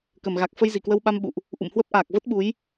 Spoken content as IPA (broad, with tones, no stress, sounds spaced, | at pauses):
k ə˧˩ m ɣ a˨˩ k̚ f ə˧ j z i˧˩ k w ə˧ w ɓ a˧ m ɓ ṵ˧˨ ʔ | ʔ ṵ˧˨ m h w ə˦˥ p̚ ʔ aː˨˩ k̚ v ə˦˥ t̚ ɓ u˨˦ j